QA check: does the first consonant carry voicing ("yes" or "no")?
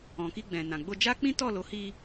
no